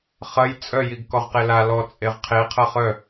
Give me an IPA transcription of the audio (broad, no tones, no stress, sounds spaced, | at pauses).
χ ɐ j t͡sʼ œ j i ɡ k ɔ ʁ q e l a l ɔ t͡sʼ e ʁ qʰ e qʰ ɐ χ œ